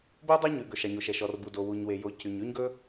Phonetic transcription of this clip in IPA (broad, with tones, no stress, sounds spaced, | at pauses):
b o˥ dˤ e˥ ɲ ʉ˩ ɡ ɵ˩ ʃ ɑ˩ ɲ o˩ ʃ ɛ˩ ʃ ɔ˩ r b u˩ d o˩ w u˩ ɲ w e˩ j o˩ c y˩ ɲ ʉ˥ ɲ ɡ ɵ˥